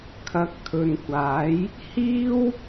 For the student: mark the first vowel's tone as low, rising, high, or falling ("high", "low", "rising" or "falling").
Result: rising